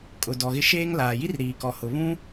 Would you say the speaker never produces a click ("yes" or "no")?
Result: yes